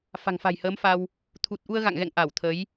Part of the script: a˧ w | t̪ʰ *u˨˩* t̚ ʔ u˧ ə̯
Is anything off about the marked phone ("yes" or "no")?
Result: no